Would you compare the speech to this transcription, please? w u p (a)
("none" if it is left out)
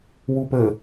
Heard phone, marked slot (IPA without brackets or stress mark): ə